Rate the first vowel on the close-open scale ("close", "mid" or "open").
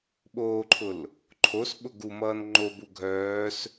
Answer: mid